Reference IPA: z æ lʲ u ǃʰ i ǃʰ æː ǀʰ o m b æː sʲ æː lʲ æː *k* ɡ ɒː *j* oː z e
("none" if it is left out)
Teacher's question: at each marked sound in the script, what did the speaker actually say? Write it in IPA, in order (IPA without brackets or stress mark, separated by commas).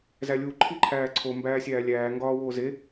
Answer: ŋ, w